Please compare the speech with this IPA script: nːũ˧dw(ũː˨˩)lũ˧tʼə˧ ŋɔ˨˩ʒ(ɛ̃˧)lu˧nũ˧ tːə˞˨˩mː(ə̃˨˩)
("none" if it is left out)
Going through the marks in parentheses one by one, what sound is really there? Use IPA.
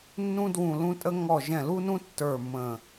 ũ˨˩, ɛ̃˨˩, ə̃˨˩

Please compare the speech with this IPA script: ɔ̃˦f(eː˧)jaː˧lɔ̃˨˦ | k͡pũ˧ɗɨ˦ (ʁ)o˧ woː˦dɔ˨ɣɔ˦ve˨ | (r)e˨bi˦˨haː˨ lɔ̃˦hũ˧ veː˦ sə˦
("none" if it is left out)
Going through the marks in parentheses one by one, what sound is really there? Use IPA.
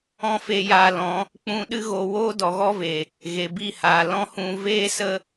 e˧, ɣ, ɣ

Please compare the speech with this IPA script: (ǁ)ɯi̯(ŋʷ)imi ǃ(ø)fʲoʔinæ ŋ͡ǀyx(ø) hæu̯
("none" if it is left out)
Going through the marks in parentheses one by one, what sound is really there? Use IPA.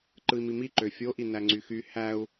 ǃ, m, ø, y

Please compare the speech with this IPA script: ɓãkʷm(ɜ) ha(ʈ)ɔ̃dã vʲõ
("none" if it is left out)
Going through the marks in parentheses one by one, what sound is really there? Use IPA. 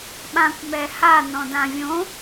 ɛ, n

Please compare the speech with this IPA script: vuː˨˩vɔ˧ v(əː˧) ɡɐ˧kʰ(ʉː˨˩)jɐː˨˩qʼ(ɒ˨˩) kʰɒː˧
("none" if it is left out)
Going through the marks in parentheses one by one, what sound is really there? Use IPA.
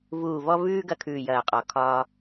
ʉː˧, ʉː˨˩, ɒ˨˩

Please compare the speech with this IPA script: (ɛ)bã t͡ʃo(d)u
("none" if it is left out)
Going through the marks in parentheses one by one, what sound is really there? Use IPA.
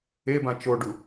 e, ɖ

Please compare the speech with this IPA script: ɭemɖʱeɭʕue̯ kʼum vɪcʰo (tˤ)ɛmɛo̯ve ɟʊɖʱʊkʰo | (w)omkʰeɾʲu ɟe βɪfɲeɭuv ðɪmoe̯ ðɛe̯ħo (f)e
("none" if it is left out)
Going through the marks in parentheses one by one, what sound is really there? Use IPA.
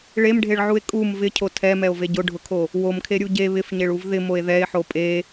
tʰ, w, pʼ

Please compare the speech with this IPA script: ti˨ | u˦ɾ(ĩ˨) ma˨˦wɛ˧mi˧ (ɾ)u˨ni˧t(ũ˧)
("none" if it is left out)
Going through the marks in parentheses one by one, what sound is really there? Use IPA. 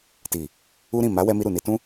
ĩ˦˨, ɾ, ũ˦

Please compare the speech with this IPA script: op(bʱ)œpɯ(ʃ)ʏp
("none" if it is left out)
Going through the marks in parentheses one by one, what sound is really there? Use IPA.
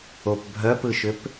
bʱ, ʃ

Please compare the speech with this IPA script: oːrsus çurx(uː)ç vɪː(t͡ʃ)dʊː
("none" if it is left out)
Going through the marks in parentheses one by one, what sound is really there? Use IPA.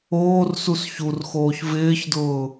oː, ç

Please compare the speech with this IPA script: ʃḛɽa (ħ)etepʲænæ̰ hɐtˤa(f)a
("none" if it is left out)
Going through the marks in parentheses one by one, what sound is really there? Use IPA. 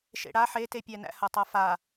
ħ, f

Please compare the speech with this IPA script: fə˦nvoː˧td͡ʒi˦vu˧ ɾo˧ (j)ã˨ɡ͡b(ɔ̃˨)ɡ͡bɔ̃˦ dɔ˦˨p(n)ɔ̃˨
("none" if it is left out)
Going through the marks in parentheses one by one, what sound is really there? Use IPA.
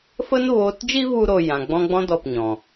j, ɔ̃˧, ɲ

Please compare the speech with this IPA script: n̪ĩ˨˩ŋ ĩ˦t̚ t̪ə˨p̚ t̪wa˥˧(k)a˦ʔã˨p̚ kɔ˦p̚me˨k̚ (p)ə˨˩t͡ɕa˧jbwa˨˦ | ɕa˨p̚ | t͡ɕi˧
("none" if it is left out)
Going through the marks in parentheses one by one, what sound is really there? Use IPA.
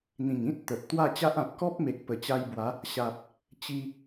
t͡ɕ, p

